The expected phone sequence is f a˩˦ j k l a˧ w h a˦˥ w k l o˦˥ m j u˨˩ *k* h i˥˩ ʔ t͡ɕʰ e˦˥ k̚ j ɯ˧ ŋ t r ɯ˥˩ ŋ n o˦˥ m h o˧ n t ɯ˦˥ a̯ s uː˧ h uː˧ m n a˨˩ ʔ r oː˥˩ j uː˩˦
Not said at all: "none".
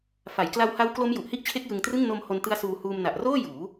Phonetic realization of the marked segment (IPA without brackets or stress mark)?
ʔ